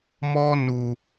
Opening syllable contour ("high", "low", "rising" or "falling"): high